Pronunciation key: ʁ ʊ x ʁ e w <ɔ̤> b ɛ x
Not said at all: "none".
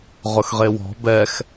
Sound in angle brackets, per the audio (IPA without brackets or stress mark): ɔ̤